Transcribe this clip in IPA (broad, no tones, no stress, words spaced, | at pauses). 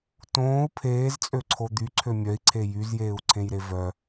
tõːu̯ pʰeːzt͡sʼøǀʰo d̪yǀʰø mʲœi̯ǀʰe jyzjeːu̯ǀʰẽjɾe vœ